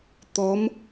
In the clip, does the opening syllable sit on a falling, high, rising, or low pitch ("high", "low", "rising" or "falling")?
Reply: rising